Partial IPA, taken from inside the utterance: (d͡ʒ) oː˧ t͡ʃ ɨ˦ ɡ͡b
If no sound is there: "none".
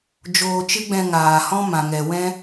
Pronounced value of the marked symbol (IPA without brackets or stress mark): d͡ʒ